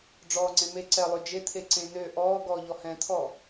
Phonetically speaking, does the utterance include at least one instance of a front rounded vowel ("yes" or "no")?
yes